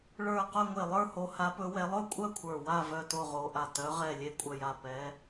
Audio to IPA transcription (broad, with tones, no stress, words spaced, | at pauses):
ɭə˞˧˩ qœ˥˨ŋʷe˧˩lˠə˞˥˨ho˨˦ ha˨˦pɵ˨˦wɛ˨˦ lˠɵ˥˨kʷʼœ˥˨ kʷʰə˞˧˩wa˥˨ vœ˥˨to˥˨ʁo˨˦ʔa˧˩ tœ˨˦ʁɛ˧˩lʲe˧˩ kʷʼœ˧˩ja˧˩ pɛ˨˦